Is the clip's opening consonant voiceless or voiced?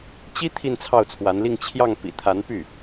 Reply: voiceless